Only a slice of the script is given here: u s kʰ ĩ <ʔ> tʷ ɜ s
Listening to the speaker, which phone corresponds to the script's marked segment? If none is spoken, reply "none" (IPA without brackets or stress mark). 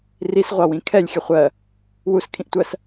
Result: ʔ